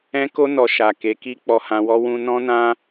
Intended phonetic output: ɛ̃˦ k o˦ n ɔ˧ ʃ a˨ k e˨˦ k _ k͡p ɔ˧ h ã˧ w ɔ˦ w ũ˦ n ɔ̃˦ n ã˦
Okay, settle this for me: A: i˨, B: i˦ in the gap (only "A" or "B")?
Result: B